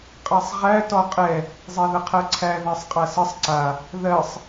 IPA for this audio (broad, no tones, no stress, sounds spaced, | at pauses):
qʼ a sˤ ʁ æ t ɔ qʼ ɛ | zˤ ɛ ð ə qʰ ɜ ǀʰ æ ð æ sˤ qʼ a s ə sˤ ǀ a | ð ɜ sˤ